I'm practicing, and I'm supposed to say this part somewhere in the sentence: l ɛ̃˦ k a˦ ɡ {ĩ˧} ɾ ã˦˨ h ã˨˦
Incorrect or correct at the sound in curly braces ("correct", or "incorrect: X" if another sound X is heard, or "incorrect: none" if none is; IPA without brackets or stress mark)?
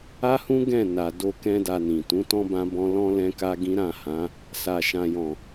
incorrect: ĩ˦